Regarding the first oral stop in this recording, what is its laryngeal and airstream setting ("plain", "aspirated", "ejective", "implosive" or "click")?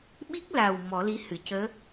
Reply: implosive